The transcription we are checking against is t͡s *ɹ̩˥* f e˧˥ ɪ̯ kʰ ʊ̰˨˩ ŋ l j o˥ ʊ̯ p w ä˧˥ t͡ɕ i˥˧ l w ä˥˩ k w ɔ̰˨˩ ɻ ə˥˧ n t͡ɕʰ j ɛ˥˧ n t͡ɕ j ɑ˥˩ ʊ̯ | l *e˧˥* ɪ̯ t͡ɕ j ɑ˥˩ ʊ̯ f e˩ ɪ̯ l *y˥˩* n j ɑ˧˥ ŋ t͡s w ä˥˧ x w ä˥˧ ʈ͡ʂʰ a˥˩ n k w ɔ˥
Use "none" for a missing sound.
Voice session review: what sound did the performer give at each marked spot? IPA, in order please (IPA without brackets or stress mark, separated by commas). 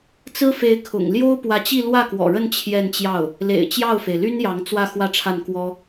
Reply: ɹ̩˥, ḛ˨˩, y˥